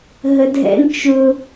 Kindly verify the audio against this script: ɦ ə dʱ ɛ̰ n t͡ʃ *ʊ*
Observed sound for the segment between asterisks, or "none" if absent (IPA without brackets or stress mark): ʊ